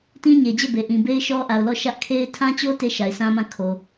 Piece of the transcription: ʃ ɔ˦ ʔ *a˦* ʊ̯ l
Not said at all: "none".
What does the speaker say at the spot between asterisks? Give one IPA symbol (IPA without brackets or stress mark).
a˨